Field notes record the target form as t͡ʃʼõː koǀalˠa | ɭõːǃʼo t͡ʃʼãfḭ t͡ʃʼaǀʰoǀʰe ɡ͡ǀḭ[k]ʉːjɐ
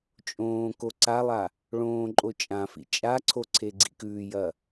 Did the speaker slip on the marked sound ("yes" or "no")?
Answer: no